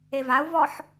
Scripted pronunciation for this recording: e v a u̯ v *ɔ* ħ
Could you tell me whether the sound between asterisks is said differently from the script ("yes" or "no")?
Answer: no